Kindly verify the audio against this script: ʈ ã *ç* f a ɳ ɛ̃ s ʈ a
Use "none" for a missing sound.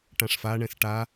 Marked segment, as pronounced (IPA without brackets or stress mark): ʂ